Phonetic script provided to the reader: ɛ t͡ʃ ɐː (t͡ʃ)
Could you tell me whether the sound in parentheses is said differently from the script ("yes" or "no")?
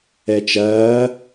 yes